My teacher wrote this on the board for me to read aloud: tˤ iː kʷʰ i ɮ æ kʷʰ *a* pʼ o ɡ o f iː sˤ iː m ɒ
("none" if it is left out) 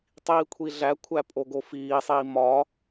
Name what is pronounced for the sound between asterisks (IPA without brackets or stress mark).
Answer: æ